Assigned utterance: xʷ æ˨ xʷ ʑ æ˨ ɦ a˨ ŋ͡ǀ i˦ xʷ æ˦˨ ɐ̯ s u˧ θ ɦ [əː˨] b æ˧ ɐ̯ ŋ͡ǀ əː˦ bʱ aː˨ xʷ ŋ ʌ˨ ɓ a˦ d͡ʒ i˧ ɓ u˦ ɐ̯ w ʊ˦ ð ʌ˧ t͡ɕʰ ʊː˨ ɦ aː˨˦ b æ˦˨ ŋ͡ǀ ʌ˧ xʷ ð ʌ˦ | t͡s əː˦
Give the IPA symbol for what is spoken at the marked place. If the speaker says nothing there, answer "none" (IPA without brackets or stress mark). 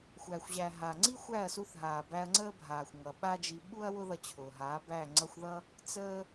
aː˨